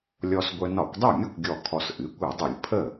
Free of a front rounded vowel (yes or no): no